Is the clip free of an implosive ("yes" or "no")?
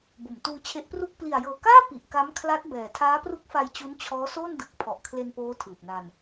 yes